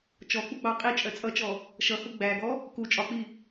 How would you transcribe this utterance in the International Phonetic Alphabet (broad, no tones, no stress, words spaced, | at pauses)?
t͡ʃɔk͡puɡ͡bɑ qʼit͡ʃʼɜ t͡sʼʌt͡ʃɔ | ʃʌhu ɡ͡bæɡɔ | ku t͡ʃʼɒk͡pi